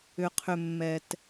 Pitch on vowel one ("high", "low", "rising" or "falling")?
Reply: low